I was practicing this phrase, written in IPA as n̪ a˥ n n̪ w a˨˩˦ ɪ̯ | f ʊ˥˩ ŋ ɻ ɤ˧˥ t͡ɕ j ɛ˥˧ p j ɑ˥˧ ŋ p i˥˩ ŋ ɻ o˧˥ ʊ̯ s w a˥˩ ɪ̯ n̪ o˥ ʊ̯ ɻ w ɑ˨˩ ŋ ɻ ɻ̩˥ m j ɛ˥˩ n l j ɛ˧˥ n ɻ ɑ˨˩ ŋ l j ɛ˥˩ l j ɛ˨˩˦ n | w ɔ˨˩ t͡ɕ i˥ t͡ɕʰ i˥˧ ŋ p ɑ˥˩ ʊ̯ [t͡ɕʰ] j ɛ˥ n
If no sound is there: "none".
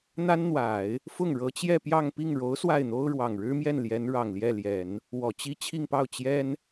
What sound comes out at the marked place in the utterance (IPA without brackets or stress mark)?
t͡ɕ